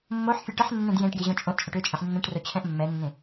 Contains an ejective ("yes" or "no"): yes